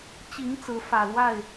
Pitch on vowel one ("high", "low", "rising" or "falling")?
rising